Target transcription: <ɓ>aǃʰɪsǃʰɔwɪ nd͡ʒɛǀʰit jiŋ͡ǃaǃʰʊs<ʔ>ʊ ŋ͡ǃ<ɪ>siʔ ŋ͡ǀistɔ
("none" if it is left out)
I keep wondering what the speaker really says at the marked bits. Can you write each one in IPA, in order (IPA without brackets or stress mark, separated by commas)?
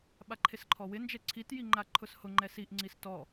ɓ, h, ɛ